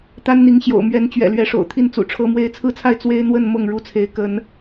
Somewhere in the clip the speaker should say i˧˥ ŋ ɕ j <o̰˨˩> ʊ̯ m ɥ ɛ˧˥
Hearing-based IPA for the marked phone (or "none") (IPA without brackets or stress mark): o̰˨˩